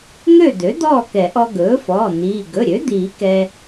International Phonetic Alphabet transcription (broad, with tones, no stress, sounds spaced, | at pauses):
ŋ ø˥˨ d̪ ø˩˥ d̪ ɔː˥˨ k ɛ˨˩˦ ʔ ɔ˧ ɡ ɵː˩˥ f ɔː˩˧˩ n̪ iː˩˧˩ ɡ ɵ˩˧˩ ɾʲ ø˩˥ d̪ iː˨˩˦ k ɛ˧